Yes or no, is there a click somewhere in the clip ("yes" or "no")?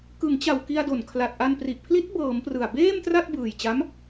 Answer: no